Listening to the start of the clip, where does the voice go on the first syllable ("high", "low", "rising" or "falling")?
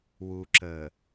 low